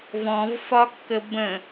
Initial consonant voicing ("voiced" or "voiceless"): voiced